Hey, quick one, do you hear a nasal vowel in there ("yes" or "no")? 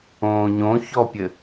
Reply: yes